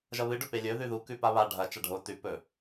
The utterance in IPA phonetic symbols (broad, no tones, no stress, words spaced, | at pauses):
ʒɐβɨ ɖɵpelʲɵ ðʉðu kʉpaβa ɖʱɐ t͡ʃaɖʱo tʉ pɵ